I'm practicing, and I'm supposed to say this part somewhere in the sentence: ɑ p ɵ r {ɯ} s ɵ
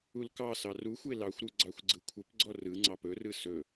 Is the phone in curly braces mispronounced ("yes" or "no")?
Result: no